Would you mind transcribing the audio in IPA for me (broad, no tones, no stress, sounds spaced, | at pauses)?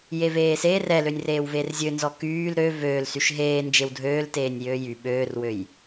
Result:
j e v eː s eː r ɛ l ø nʲ r eː w v e r zʲ ø n z ɔ k yː l ɾ ø v øː l s y ʃ ɦ eː n d͡ʒ e w dʱ øː l t eː nʲ j øː j y ɓ øː r w ø j